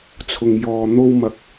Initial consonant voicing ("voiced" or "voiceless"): voiceless